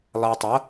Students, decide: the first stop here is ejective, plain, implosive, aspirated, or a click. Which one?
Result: plain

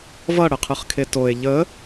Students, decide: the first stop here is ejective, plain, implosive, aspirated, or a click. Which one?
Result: aspirated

